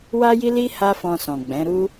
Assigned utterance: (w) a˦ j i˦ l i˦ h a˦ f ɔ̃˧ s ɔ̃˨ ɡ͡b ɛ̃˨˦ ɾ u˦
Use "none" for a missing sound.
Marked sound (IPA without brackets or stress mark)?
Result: w